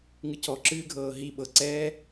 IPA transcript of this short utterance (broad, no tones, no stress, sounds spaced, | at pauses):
ŋ ɨ cʰ ɔ ǁ ɨː ɡʱ ɤː ɦ i ɓ ɤ ǀ ɛː